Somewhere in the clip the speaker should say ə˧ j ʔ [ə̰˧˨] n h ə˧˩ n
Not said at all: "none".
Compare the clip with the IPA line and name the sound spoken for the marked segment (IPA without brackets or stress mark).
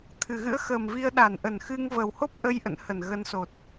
ə̰˧˨